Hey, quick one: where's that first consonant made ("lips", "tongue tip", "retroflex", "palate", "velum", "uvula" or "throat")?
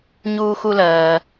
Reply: palate